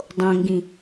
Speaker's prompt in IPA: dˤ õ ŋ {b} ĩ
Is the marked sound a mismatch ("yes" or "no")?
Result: yes